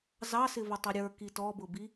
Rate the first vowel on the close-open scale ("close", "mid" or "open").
open